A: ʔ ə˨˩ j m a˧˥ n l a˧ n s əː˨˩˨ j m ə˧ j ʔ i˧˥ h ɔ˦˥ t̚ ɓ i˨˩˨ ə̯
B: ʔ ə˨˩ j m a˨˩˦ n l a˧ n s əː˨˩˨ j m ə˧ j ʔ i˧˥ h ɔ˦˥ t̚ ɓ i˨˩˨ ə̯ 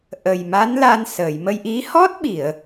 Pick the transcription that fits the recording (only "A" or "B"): A